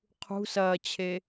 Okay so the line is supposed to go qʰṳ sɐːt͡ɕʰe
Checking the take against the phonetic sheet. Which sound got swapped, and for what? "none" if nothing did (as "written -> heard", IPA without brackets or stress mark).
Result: none